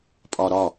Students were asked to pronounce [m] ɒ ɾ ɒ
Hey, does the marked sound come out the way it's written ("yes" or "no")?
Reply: no